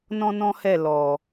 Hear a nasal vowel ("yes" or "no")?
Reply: yes